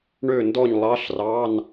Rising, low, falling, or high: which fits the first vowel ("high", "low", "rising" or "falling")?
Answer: falling